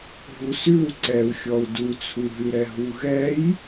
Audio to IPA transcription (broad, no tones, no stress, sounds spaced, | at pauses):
ɦ u s ʉ u̯ ǀ ɛ u̯ xʲ ɔ u̯ d u t͡sʰ u ɦ ʉ ɾ ɛ ɦ u ɣ ɛ j